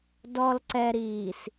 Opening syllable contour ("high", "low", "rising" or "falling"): low